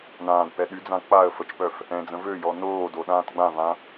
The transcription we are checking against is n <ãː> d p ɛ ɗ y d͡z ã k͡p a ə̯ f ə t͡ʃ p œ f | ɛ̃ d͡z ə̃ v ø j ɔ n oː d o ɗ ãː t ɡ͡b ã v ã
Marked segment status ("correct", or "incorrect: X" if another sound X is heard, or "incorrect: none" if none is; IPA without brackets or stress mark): correct